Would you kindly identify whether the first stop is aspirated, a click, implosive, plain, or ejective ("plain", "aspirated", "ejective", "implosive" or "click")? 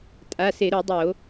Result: ejective